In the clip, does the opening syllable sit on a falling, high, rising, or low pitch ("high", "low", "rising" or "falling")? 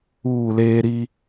falling